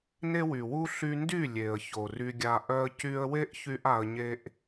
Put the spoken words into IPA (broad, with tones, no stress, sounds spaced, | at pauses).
n e˦ w y˨ w u˦ ɬ y˧ n d y˦˨ lʲ e˨ ə̯ ç o˨ r y˧ ɡʲ a˧ ʔ œ˧ ə̯ c y˧ ə̯ w e˦ ʔ ç y˦ ʔ a˧ ə̯ ɲ e˦ ʔ